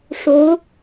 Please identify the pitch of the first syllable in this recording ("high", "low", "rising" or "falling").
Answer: rising